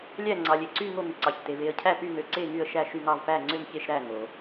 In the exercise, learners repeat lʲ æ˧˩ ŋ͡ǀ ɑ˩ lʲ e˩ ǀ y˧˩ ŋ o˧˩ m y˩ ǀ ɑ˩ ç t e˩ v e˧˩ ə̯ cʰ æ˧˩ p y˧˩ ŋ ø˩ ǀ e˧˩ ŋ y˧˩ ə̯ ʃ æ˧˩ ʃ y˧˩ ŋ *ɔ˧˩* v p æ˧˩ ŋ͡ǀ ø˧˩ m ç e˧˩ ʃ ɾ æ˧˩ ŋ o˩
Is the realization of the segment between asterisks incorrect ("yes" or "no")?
yes